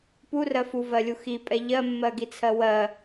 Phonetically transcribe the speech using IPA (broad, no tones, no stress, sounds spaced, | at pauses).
p u r ɜ f u v ɜ lʲ u x i pʼ ɛ ʎ ɜ mː ɜ ɡ i t͡sʰ ɜ w ɜ